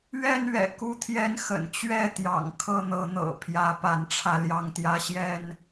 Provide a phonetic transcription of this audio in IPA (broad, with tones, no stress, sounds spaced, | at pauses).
ɥ ɛ˥˨ n ɥ ɛ̰˨˩ k u˦ t̪ʰ j ɛ˦ n x ə̰˨˩ n t͡ɕ ɥ ɛ˥˨ t̪ j ɑ̰˨˩ ŋ kʰ ɤ˥˨ n̪ ɤ˨˦ n̪ ɤ̰˨˩ pʰ j ä˨˦ p a˨˦ n ʈ͡ʂʰ ä˧ l j ɑ˥˨ ŋ t̪ j ä˦ ɕ j ɛ˥˨ n